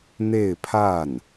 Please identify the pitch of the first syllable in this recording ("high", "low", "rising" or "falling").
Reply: falling